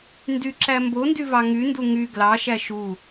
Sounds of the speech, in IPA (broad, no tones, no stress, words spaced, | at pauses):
ndyǁæ mbondyvɑ ŋyndu ŋy ɡlɑʃæ ʃu